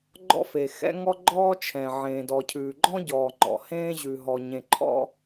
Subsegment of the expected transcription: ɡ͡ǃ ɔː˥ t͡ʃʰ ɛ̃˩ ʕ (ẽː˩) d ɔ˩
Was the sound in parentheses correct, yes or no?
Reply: yes